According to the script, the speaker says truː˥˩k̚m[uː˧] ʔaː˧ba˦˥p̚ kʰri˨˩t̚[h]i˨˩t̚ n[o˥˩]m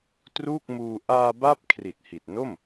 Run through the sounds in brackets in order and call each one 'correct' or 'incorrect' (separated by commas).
correct, correct, correct